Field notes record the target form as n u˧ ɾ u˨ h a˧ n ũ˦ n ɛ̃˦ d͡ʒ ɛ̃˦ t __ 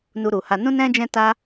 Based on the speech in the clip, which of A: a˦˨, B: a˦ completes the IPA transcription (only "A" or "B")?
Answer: B